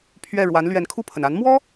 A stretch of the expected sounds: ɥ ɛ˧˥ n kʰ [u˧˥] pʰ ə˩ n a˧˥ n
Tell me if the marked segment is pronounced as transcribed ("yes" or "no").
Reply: no